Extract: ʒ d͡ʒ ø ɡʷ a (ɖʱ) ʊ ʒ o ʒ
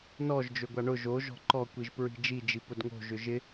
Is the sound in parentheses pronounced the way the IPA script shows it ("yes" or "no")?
no